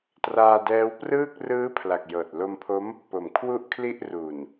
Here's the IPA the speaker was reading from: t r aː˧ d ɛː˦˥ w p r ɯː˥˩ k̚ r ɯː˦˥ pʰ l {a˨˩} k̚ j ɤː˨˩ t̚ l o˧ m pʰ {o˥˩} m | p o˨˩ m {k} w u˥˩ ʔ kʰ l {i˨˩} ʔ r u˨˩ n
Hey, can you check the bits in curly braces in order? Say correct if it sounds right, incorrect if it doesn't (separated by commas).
correct, incorrect, incorrect, incorrect